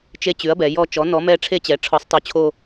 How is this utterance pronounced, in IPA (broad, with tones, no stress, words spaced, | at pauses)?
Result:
t͡ʃe˦˨ t͡ɕʉ˨˥ɐ̯bɛ˩˧ jɔ˦˨t͡ʃɔ˨˥ nɔ˨˥mɛ˦˨ ʈ͡ʂʰe˦˨t͡ɕɛ˩˧ ʈ͡ʂʰɔ˨˥sˤtˤo˨˥ t͡ɕʰo˦˨